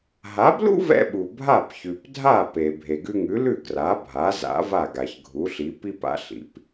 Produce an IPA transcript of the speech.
ɦ a˩˥ b l ṵ˥ v ɛ̰˧ ɓ u˩ bʱ a˥˩ p ç ʉ˩ p dʱ a˥˩ p e˩ bʱ e˩ ɡ ʉ˧ ŋ ʉ˩˥ l ʉ˥˩ ɡ r a˩˥ bʱ a˩˥ z a̰˩˥ v a˥˩ ɡ a˩ ç ɡʱ u˩˥ ɬ i˩˥ p i˥ p a̰˥ ɬ ḭ˩˥ p

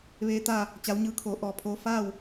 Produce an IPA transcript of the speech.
ʋ eː˧˥ t̪ a˥˨ | t͡ɕ a˧˥ w ɲ ɯː˧˥ kʰ oː˩˧ ʔ ɔː˧ pʰ oː˧˥ f aː˥˨ w

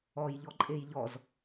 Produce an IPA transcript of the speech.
ɔ j ʎ ɔ ǃʼ e j ʎ ɔ z

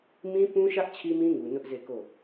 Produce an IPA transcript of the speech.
m ĩ˦ p ũ˦ ʃ ä˦ ʔ t͡ɕʰ i˦ m ĩ˦ ŋ u˨ n ʊ˦ ʔ z e˦˨ k o˦˨

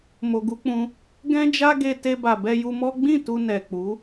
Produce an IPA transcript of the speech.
m o˨ ɡ u˧ k͡p ũ˧ | ɡ ɛ̃˦ d͡ʒ a˦ ɡ e˧ t e˧ b a˨ b ɛ˧ j u˧ m ɔ˦ ɡ͡b ĩ˦˨ t u˧ n ɛ˨ k͡p u˨˦

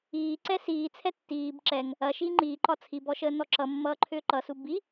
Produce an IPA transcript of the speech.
iː ǀ ɛ s iː t͡sʰ ɛ tː iː b ǁ ɛ ŋ | ɐ ʃ iː ŋ͡ǃ iː ǃ ɒ t͡sʰ i b ɔ ʃ əː n ɔ ǁ ʌ mː ʌː ǃʰ ʏː ǃ ʌ s u b i

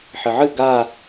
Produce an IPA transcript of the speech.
ħ ɘ ʕ ɨ ɡ a

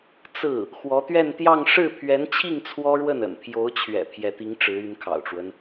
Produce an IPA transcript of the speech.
t͡s ɹ̩˥˩ | x w ɔ˧˥ t̪ ɥ ɛ˥˧ n t̪ j ɑ˥˧ ŋ ʂ ɻ̩˥˩ pʰ ɥ ɛ˧˥ n t͡ɕʰ i˥˩ ŋ t͡sʰ w ɔ˥ ɻ w ə˥˩ n ə̰˨˩ n pʰ j o˧˥ ʊ̯ t͡ɕʰ ɥ ɛ̰˨˩ pʰ j ɛ˧˥ t̪ i˧˥ ŋ ʈ͡ʂ ɻ̩˧˥ y˧˥ n kʰ ɑ̰˨˩ ʊ̯ ʈ͡ʂ w ə˦ n

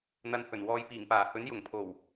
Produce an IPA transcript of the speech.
n̪ ɐ˧ n h ɵ˨˩ n w ɔː˧ j p iː˨˩ ŋ p aː˨˩ h ɵ˨˥ n j ʊ˨˩ ŋ pʰ o˨˩ w

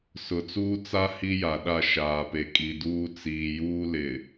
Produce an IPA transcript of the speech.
s ʊ˨ t͡s uː˦ t͡s a˦ h i˦ j a˨ ɗ a˦˨ ʃ aː˨ p e˨ kʼ i˨ d uː˦ t͡s iː˨ j uː˦ l ɪ˨

